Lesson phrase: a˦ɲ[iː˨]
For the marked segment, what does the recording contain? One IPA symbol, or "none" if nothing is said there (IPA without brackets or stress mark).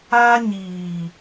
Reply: iː˨